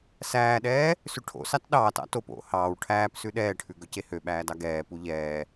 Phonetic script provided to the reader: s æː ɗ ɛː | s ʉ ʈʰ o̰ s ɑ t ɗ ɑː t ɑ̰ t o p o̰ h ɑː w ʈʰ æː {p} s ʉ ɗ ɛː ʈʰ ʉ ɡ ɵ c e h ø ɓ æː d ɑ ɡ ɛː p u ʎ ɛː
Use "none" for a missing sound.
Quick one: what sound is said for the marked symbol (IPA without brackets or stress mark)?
p